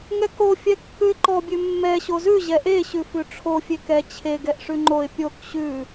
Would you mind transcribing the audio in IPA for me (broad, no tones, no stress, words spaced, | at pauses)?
ŋɛko fʲɛkːʉɪ̯ǃɔ bʲʉmːɛ ɕozʉ ʑɛʔe ɕʉfʉʈ͡ʂʰo fʲekɛ t͡ɕʰe ɡɛʔʂʉŋ͡ǃoɪ̯ pʲok ɕʉ